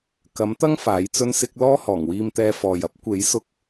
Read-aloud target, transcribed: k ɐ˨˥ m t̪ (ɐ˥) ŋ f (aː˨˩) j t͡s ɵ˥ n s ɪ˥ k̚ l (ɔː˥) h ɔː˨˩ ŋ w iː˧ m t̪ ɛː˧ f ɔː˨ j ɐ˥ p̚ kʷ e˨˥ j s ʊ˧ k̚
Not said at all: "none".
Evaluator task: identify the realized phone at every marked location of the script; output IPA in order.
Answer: ɐ˥, aː˨˥, ɔː˥

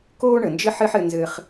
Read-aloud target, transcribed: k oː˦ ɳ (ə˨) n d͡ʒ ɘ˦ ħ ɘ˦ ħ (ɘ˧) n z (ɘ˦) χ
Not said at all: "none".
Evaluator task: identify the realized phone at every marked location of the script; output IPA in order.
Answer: ə˨, ɘ˧, ɘ˧

